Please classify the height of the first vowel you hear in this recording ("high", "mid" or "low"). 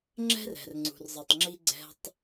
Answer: mid